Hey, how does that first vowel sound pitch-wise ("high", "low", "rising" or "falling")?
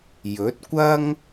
rising